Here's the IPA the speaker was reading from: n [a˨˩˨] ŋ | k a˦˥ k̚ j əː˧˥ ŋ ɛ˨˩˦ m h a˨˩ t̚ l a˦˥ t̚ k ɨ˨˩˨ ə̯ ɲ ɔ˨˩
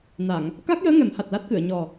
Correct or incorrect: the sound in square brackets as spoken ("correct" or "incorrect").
correct